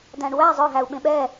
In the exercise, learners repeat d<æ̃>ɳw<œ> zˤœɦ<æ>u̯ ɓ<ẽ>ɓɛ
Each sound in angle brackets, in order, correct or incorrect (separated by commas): correct, incorrect, correct, correct